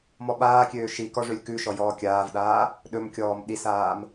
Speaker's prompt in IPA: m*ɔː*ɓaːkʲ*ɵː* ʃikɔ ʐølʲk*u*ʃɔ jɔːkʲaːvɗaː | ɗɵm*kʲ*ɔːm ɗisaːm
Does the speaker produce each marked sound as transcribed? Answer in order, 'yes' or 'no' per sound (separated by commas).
no, no, no, yes